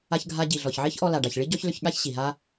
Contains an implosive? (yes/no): yes